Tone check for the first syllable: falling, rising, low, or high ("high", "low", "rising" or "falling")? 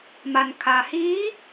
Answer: low